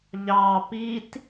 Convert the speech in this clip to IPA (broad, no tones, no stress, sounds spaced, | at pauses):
ʎ ɑ p i t